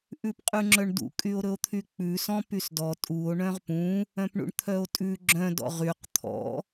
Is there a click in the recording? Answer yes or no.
yes